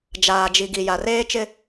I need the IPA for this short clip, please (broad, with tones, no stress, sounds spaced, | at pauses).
d͡ʒ aː˨ d͡ʒ i˨ ɡ i˨ j a˨ r eː˦ t͡ʃ ɪ˦